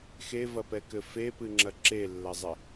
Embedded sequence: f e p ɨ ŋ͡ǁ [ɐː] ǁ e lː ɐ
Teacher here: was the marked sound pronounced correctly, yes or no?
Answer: no